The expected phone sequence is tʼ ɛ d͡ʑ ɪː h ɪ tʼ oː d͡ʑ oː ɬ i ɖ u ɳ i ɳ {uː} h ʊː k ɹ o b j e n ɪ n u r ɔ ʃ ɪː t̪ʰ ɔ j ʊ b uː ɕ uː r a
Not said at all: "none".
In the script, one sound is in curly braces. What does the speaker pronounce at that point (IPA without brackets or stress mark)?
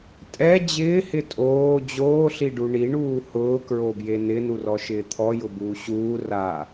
uː